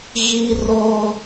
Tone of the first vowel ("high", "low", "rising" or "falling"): high